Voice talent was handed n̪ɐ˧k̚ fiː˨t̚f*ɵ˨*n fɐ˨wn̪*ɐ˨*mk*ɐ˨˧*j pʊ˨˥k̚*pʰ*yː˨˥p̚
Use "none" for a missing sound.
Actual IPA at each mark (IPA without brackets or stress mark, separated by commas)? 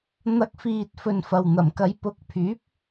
ɵ˨, ɐ˨˩, ɐ˨˧, pʰ